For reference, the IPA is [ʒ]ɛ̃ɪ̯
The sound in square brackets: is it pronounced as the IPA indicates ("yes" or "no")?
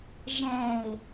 yes